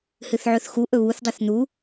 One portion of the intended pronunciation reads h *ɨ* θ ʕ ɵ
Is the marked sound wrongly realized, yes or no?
no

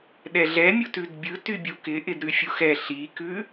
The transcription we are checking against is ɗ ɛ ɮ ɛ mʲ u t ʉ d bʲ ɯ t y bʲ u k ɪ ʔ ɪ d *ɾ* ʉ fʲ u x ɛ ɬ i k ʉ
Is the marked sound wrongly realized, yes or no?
no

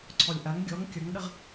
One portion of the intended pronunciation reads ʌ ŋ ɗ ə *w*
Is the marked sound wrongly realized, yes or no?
yes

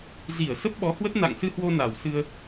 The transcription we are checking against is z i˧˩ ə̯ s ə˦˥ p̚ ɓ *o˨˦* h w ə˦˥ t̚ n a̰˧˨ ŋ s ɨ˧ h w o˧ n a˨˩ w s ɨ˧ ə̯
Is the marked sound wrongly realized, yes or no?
yes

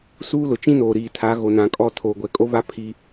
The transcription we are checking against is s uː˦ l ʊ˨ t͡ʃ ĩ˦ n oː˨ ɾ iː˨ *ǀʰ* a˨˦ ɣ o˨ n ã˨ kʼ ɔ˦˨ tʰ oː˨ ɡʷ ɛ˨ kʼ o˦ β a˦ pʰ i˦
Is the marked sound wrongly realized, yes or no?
yes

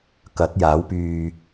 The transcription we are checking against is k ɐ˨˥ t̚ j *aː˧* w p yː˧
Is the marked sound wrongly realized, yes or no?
yes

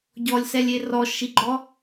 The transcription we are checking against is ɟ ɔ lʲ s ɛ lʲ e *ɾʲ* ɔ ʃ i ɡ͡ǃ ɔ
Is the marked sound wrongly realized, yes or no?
yes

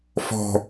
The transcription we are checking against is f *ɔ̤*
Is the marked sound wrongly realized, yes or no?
no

